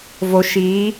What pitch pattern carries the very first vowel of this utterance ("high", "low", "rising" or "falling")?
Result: low